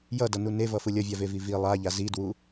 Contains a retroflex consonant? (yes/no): no